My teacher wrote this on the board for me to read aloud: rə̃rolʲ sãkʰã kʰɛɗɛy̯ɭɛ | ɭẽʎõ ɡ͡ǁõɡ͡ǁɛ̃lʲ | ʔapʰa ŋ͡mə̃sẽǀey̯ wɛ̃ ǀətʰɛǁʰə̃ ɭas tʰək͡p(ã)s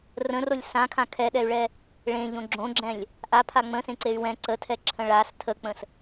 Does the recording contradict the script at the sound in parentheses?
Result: yes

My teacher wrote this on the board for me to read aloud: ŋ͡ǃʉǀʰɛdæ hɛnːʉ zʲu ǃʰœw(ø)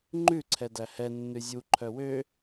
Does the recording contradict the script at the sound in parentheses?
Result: no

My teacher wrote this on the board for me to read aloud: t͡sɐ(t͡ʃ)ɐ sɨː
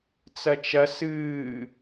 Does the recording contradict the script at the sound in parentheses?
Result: no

